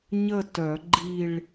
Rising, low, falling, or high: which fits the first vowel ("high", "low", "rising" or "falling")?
falling